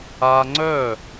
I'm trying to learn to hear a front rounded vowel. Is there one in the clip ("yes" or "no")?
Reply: yes